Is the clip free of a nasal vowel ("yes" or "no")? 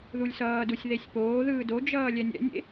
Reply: yes